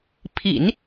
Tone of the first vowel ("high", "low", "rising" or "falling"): low